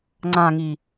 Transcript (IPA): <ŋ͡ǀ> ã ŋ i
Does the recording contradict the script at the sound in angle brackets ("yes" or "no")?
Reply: no